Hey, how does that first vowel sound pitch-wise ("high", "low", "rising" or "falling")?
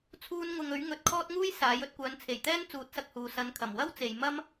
high